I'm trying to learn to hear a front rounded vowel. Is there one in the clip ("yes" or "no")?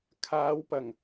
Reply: no